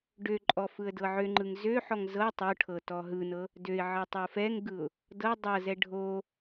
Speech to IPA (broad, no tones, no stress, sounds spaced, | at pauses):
ɖ ø ǃʼ ɔ f ɯ ə̯ d ɤ ʕ ø ŋ͡ǃ ɯ ŋ z ø ħ ɔ ŋ z ɤ tˤ o ʈʰ ɤ t ɔ ɦ ɯ n ɤ | d ø ɪ̯ ʕ ɤ tˤ o f ɛ ŋ ɡ ɯ ʊ̯ | d ɤ dˤ ɤ z ɛ ɖʱ o